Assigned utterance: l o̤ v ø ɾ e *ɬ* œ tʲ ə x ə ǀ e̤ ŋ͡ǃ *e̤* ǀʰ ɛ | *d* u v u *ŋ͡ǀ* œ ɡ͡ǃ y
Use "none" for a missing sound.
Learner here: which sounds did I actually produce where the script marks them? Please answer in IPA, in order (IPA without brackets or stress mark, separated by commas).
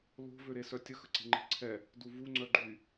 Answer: s, e̤, d, ŋ͡ǀ